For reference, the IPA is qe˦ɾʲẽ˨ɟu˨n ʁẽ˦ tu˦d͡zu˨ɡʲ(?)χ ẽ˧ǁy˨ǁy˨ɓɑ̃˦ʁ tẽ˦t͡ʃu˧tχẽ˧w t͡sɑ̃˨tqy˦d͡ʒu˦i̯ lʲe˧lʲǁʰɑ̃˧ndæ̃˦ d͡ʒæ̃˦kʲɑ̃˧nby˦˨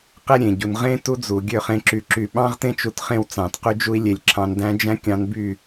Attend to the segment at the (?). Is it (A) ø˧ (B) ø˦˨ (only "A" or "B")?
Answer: B